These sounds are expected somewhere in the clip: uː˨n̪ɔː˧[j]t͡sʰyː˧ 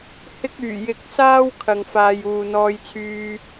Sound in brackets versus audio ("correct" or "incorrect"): correct